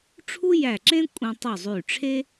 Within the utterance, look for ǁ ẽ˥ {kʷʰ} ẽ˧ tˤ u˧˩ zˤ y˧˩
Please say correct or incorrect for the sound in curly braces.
incorrect: kʷʼ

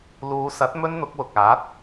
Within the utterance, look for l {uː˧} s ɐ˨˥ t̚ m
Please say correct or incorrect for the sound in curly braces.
incorrect: uː˨˧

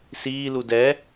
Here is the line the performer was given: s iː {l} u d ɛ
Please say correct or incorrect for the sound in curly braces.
correct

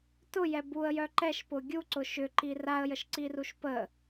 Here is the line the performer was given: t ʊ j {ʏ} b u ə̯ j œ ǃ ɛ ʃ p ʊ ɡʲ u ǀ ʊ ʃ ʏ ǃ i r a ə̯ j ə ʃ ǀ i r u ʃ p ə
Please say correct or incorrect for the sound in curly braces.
incorrect: ɛ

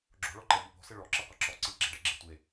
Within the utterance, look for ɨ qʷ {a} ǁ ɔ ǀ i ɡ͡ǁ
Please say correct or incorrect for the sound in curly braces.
incorrect: ɐ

